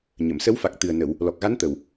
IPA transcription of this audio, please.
ɲ ə˨˩˨ m s ə˧˥ w f a˨˩ k̚ t̪ ɨ˨˩ ə̯ n ə˨˩˨ w | l ɔ˨˩ k̚ ɣ a˧˥ n t̪ ə˨˩ w

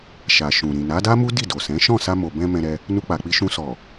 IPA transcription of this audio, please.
ʃ a˨ ʃ ũ˨ ɾ ĩ˨ n a˨˦ d a˦ m u˦ d i˦˨ d o˨ s ɛ̃˨˦ ʃ ɔ̃˦˨ s a˧ m o˨ b ɛ̃˧ m ɛ̃˧ ɾ ɛ˧ | n u˧ k͡p a˨ k͡p i˧ ʃ ũ˧ s ɔ˨

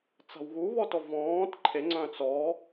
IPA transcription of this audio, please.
t͡s a̤ w ɣ u β ɔ t ɔ v ɔ̃ː t ǃʰ e ŋ͡ǀ œ̃ t͡s ɔ

